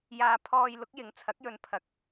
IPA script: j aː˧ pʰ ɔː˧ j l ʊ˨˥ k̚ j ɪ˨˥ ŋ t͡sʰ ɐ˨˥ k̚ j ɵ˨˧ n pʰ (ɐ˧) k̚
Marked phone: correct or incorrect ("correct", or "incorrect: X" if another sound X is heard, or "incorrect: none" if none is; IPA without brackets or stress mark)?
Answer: incorrect: ɐ˨˥